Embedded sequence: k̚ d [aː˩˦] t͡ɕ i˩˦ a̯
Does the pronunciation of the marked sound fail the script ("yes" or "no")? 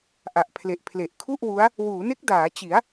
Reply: no